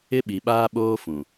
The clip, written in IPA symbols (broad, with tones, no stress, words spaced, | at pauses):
ɪ˦ɓi˨ ɓaː˦ɓoː˦fũ˨